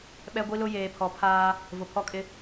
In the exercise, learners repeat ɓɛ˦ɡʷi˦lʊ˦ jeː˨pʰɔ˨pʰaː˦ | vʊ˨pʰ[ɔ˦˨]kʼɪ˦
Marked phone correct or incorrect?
incorrect